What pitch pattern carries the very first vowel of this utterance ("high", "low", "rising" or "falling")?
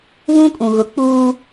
high